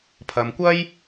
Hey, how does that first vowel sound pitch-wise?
low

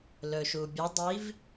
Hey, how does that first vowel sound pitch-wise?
low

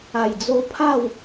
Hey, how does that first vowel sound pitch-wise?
low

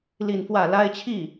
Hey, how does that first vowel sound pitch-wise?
falling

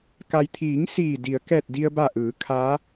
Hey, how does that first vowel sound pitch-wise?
low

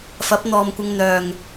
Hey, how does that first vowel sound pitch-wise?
rising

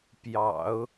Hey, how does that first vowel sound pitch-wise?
low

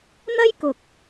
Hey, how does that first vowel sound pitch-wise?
high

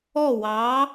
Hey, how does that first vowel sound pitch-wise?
falling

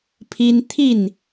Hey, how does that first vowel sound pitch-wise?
high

